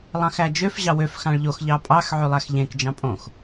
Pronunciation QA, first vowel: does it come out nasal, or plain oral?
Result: nasal